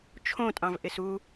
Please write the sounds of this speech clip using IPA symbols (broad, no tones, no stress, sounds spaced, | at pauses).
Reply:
t͡ʃʰ õ tʼ ɑ̃ v ʔ ɪ s u